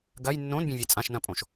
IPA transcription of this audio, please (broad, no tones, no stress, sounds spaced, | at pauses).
ɡ ɐ j nː õ n bʲ ẽ vʲ e t͡sʼ ã ʃ n ɐ̃ pʼ õ ʃ